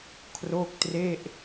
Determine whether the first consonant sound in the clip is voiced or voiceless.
voiceless